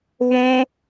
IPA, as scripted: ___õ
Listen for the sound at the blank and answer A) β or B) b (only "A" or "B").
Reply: A